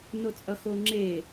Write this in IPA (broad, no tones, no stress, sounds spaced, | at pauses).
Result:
n o t͡sʼ ʌ x o ŋ͡ǁ e